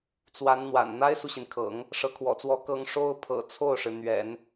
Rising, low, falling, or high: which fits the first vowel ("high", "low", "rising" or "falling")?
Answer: rising